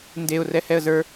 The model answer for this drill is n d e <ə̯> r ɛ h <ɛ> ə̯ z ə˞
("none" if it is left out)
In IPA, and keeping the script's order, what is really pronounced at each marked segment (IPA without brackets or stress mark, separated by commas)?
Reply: ʊ̯, ɛ